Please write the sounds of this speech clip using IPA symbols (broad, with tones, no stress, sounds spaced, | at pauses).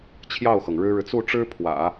t͡ɕʰ j ɑ˥˩ ʊ̯ x ɤ˩ ŋ ɻ ɻ̩˥ ɻ ɻ̩˨ t͡s u˥˩ ʈ͡ʂ ɻ̩˥ pʰ w ä̰˨˩˦